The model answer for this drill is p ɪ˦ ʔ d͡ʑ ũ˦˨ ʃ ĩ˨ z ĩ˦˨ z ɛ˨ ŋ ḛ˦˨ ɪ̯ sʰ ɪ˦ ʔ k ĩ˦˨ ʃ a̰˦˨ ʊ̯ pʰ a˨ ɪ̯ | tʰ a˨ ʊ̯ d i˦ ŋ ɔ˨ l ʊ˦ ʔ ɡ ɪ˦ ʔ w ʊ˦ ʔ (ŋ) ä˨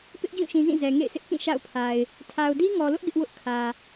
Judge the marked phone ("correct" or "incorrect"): incorrect